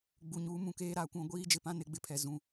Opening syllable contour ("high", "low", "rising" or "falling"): low